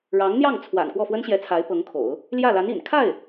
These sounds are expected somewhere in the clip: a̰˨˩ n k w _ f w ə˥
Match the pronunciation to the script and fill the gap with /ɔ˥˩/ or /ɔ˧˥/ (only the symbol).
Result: ɔ˥˩